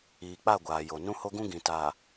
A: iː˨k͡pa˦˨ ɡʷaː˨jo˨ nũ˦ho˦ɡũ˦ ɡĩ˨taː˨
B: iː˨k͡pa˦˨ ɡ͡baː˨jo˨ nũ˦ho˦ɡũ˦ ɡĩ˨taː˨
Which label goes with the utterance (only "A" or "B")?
A